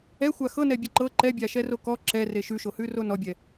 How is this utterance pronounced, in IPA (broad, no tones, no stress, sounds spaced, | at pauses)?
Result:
ɛ xʷ a x ɤ n ɛ bʲ ʌ ǃ ɤ ǃ ɛ bʲ a ʃ ɛ r o k ɔ ǁ ɛ r e ʃ ʉ ʃ o h ʉ r o n ɔ bʲ ɛ